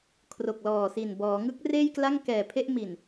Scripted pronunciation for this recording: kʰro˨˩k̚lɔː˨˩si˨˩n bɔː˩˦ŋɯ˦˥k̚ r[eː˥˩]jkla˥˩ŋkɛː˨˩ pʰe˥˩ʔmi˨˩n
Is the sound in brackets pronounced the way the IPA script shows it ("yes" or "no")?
yes